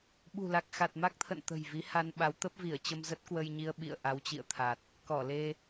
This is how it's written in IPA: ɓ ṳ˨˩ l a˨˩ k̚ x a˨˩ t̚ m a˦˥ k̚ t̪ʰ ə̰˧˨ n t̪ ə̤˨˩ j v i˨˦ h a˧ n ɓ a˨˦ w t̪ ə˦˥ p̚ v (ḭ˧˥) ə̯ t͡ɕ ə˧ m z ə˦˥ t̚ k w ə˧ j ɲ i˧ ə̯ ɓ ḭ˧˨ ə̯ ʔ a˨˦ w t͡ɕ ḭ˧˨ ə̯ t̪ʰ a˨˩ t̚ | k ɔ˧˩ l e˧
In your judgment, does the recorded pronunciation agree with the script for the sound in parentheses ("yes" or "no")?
no